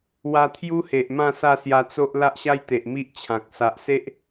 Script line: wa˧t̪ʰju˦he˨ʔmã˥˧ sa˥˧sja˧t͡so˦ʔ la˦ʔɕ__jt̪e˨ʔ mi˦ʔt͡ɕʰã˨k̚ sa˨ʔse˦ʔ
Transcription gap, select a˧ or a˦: a˦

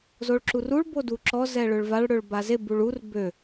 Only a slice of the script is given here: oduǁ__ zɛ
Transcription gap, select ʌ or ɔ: ɔ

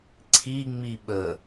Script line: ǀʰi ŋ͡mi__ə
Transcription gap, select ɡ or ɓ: ɓ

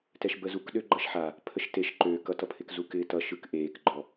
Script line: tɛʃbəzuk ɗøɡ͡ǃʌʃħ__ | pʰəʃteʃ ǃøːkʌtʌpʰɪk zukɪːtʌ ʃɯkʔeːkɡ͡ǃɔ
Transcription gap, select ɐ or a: a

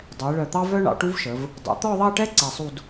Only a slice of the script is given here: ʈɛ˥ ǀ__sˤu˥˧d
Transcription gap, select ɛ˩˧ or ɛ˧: ɛ˧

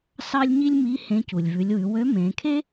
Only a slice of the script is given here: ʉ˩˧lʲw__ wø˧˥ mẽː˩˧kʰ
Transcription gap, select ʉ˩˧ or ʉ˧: ʉ˩˧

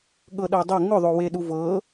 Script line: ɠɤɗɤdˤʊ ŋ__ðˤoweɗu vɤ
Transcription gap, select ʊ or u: ʊ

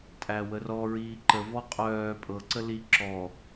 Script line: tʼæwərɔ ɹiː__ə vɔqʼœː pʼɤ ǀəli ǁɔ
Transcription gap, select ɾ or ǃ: ǃ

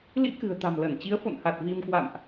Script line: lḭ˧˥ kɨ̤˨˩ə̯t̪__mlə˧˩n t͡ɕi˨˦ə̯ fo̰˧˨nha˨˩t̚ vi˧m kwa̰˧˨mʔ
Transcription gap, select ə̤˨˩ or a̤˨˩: a̤˨˩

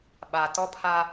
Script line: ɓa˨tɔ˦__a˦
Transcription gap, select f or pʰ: pʰ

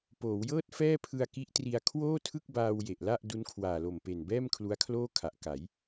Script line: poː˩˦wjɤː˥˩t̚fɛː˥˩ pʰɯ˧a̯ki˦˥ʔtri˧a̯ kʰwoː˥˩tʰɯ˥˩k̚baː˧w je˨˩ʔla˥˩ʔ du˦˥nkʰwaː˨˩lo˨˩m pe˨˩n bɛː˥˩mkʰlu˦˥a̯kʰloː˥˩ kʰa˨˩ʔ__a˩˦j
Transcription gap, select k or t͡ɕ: k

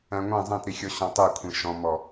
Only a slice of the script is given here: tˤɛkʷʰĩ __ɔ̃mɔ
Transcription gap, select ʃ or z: ʃ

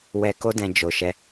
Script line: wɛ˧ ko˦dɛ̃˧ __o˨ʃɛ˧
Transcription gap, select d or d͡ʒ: d͡ʒ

